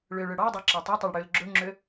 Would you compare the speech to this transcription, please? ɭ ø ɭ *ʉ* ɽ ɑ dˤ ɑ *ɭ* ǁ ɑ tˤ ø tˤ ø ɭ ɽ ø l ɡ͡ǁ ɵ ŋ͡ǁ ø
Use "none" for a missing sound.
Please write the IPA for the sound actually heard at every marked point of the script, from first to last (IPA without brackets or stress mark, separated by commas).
ø, none